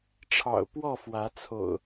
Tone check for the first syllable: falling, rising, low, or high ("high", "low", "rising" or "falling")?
low